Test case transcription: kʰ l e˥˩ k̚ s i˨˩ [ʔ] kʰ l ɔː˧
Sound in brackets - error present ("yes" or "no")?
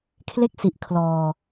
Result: no